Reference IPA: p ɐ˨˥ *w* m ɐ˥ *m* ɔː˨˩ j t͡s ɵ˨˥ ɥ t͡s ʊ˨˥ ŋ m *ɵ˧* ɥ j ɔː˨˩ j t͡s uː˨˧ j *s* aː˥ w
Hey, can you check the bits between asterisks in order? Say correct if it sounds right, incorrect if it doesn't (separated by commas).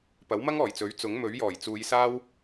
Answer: correct, incorrect, incorrect, correct